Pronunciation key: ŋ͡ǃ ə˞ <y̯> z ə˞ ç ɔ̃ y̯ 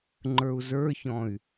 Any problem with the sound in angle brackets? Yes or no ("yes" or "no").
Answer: yes